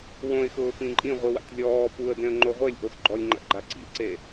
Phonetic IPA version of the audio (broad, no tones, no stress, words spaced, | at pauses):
wõɪ̯xʊː pĩǃʼĩʁʷi wa̰tʲlʲɔː puə̯dẽə̯ ŋ͡ǃoʁʷelʲʔos ɡ͡ǃɔlʲ ŋ͡ǃa̰ɡ͡ǃa ǀḭlʲǀe